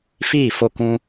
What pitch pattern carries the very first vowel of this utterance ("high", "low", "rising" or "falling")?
falling